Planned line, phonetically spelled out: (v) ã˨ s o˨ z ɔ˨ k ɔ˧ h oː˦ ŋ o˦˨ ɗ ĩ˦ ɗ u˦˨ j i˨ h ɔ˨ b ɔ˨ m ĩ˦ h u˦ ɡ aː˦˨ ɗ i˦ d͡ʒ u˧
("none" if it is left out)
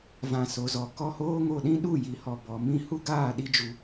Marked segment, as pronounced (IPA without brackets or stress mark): v